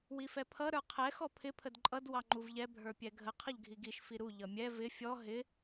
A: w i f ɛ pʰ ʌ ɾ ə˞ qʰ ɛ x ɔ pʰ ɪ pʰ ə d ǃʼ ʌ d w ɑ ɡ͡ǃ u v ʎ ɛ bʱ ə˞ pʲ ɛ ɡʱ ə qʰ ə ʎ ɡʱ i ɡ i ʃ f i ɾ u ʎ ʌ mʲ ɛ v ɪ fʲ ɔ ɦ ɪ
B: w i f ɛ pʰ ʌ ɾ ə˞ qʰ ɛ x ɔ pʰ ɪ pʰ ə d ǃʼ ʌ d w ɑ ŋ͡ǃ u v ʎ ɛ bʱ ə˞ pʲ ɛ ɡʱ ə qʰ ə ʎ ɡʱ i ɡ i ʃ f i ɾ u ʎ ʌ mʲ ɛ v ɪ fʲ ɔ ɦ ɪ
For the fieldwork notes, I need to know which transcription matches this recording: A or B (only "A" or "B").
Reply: B